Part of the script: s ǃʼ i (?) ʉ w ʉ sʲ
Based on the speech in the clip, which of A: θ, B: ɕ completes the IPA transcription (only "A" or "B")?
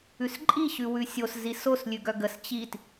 B